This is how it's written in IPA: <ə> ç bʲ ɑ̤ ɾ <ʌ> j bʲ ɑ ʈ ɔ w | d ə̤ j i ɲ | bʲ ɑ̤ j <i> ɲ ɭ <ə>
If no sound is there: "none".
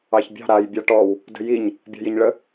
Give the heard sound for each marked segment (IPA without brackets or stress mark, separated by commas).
ɑ, a, i, ə